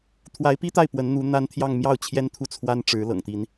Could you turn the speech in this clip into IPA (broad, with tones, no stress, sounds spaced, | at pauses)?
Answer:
t̪ʰ w a˧˥ ɪ̯ p i˥ t̪ a˥˩ ɪ̯ p w ə˧˥ n n̪ u˧˥ n̪ a˥ n t̪ʰ j ɑ˥˧ ŋ m j ɑ˥˩ ʊ̯ t͡ɕʰ j ɛ˥ n t̪ʰ u˥˩ t͡sʰ w a˥ n ʈ͡ʂ ɻ̩˧˥ l ɤ̰˨˩ ŋ t̪ i˧˥ n